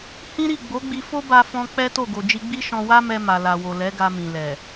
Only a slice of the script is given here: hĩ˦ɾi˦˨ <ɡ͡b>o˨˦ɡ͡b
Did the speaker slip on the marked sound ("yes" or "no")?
no